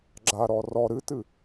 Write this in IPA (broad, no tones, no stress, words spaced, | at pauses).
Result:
ɡ͡ǁaɾɔ rɔ ɾɨtɨ